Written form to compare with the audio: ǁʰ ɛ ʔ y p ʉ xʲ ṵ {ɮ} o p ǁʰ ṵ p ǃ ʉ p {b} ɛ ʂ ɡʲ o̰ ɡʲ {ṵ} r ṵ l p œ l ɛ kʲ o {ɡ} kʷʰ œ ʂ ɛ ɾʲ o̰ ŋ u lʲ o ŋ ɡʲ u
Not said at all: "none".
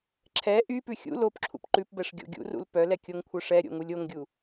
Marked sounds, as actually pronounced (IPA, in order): l, b, ṵ, ŋ

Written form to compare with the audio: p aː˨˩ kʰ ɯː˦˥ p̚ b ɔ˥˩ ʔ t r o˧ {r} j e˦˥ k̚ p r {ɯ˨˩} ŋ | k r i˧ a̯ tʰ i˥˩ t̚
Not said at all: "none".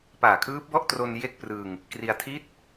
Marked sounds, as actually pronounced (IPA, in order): n, ɯ˧

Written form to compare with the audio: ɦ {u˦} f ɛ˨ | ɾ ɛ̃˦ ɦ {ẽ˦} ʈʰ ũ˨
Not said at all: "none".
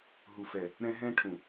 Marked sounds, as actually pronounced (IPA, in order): u˨, ɛ̃˦

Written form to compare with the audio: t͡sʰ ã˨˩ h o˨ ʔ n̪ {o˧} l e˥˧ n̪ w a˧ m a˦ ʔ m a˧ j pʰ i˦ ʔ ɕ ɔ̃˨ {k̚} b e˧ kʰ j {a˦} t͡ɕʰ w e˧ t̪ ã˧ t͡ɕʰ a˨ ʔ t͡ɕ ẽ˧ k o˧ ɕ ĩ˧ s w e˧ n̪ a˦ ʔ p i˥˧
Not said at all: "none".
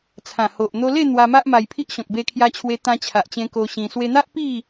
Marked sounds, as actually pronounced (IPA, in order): o˧, k̚, a˧

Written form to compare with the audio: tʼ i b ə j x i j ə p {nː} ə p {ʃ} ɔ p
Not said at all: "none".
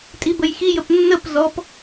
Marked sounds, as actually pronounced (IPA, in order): nː, z

